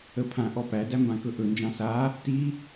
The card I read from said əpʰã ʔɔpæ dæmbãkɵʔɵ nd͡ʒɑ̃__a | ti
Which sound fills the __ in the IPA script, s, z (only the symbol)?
s